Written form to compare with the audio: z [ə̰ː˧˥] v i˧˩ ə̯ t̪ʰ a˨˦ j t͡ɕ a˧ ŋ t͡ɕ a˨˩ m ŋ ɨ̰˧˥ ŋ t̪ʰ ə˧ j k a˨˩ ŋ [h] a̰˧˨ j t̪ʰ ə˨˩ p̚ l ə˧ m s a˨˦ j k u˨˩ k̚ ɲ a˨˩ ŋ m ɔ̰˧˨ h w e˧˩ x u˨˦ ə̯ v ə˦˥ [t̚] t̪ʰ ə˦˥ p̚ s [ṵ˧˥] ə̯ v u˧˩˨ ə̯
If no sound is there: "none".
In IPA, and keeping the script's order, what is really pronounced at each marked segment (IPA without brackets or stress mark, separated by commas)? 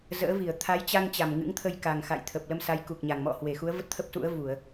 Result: ə̰ː˧˥, x, t̚, ṵ˧˥